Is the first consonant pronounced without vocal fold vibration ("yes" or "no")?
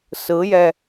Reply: yes